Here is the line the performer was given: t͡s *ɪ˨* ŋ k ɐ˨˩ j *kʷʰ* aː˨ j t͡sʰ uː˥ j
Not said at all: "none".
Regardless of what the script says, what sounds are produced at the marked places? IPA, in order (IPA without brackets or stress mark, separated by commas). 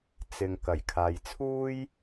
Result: ɪ˨, kʰ